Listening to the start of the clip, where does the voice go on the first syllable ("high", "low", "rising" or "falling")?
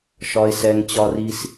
low